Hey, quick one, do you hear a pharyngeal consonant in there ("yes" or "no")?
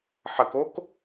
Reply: yes